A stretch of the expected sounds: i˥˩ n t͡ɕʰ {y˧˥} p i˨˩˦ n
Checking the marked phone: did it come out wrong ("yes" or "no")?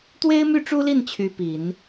no